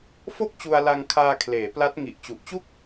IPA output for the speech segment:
f o˥˩ k̚ t͡ɕ u˧ a̯ l a˧ ŋ kʰ aː˧ kʰ l eː˩˦ p l a˦˥ t̚ ŋ i˨˩ ʔ t͡ɕ u˨˩ ʔ t͡ɕ u˥˩ k̚

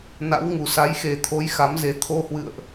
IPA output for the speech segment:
n a̰˧˥ w ŋ u˨˩ s a˨˦ j x e˨˩ t̪ʰ o˨˦ j x a˨˦ m z e˨˦ t̪ʰ o˧ h w ɨ̰˧˨ ə̯ ʔ

